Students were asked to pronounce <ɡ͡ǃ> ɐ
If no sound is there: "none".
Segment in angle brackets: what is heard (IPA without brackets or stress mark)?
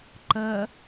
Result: ǃ